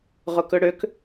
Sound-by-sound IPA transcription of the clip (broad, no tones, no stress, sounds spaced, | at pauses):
ʁ ʊ k ɵ ɽ ø k